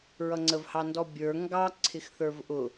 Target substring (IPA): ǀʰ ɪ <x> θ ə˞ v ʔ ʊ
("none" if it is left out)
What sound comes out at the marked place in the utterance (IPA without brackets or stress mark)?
x